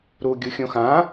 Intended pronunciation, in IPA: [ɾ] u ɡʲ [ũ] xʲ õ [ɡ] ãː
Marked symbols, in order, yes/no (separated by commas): yes, no, no